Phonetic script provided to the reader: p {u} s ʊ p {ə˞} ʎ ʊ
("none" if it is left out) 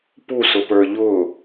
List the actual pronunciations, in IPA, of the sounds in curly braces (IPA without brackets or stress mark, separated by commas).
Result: u, ə˞